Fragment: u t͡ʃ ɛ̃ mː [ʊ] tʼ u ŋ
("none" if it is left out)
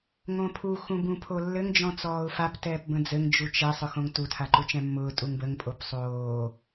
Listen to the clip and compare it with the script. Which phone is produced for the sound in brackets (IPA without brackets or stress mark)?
ʊː